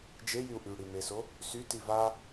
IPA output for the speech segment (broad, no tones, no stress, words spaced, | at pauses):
d͡ʒejyu̯ ʔyɽimeso | syti va